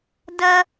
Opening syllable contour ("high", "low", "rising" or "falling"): high